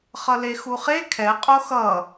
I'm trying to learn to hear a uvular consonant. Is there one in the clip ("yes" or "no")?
yes